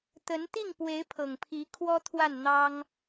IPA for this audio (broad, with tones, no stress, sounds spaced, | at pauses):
t̪ ə˧˥ n t̪ i˥˩ ŋ p w e˧˥ ɪ̯ pʰ ɤ˨˩ ŋ pʰ i˧˥ kʰ w ɔ˥ t̪ʰ w a˥˩ n n̪ ɑ˥ ŋ